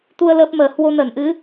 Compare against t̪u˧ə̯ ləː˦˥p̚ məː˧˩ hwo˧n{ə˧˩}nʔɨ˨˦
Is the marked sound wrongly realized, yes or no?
no